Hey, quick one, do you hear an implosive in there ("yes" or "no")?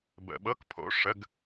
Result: yes